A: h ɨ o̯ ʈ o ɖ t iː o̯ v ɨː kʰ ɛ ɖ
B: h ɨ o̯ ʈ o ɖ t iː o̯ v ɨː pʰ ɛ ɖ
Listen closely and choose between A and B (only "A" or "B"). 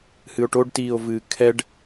A